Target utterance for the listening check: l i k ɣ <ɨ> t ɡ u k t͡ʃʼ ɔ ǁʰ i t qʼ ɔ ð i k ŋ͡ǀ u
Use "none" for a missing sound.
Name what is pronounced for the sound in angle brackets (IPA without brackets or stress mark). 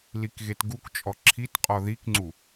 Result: e